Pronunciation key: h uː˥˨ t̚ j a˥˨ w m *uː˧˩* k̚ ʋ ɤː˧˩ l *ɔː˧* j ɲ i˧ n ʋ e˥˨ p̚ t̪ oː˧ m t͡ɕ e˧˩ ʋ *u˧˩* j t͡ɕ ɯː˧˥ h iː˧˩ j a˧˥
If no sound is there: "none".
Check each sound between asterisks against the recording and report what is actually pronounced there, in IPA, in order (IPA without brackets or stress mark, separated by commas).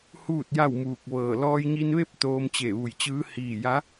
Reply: uː˧˩, ɔː˧, u˧˩